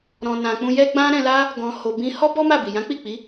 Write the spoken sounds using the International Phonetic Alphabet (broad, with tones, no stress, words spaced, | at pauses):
ɾɔ̃˨nã˨k͡pũ˧ jɛ˦ɡ͡bã˦ ɾɛ̃˧la˦ | ɡɔ̃˨ ho˨ bĩ˧hɔ˦ bɔ˦ma˦˨bi˨ jã˨˦k͡pi˦˨k͡pi˨˦